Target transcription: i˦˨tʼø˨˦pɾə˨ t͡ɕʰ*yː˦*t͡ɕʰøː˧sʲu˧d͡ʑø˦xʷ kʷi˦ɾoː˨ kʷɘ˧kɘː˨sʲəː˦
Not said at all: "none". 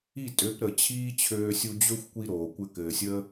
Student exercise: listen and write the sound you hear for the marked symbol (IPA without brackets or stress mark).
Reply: iː˦